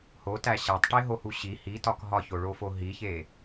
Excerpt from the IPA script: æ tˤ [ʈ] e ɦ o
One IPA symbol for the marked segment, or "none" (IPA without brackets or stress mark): ʈ